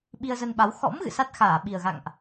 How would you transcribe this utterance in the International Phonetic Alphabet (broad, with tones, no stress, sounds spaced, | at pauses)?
ɓ i˧ ə̯ z ə˧ n ɓ a˨˦ w x ɔ̰˧˥ m ɣ ɨ̰˧˨ s a˦˥ t̚ x aː˧˩ ɓ i˨˩ ə̯ ɣ a̰˧˨ ŋ ʔ